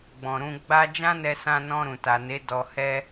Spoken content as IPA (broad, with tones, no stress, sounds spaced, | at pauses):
ɡ͡b ɔ̃˨ ɾ ũ˧ ɡ͡b a˦ d͡ʒ ã˦ n ɛ˧ s ã˧ n ɔ̃˧ ɾ ũ˨ t a˨ n e˨˦ d ɔ˧ h ɛ˦